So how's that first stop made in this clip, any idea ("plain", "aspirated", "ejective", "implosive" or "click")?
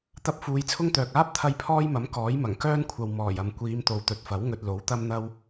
plain